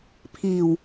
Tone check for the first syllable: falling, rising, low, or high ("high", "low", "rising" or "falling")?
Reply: low